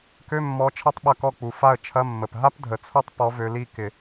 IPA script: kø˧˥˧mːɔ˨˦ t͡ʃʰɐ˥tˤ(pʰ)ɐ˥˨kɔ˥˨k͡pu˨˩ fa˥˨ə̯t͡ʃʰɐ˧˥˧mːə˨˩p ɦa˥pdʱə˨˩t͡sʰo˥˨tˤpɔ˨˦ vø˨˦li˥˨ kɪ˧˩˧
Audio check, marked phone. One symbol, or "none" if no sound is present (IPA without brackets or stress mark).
ɓ